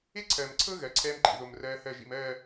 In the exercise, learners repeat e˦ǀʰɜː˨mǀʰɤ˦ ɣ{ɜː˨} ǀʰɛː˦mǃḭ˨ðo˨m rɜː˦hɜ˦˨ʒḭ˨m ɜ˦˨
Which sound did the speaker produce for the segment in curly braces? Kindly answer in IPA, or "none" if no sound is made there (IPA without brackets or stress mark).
ɜ˨